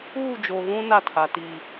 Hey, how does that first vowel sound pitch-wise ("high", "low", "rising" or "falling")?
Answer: falling